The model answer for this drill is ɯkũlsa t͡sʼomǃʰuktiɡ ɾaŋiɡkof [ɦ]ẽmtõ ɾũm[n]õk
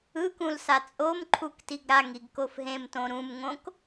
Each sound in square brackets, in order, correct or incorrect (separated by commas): correct, incorrect